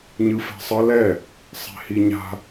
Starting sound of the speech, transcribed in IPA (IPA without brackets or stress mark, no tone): ɲ